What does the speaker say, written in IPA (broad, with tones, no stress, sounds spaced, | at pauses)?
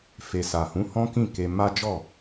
f e˨ s a˨ h ũ˨˦ h ɔ̃˦ k ĩ˦˨ k e˧ m a˦ d͡ʒ ɔ˦˨